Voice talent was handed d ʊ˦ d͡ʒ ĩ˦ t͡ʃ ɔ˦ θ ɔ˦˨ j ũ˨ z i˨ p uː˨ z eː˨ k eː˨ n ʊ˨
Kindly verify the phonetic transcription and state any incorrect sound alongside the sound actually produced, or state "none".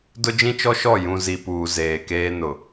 θ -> ʃ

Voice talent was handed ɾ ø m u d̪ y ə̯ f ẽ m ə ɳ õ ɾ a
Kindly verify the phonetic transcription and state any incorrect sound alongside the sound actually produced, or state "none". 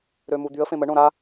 none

